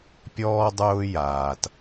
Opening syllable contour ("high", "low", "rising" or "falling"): high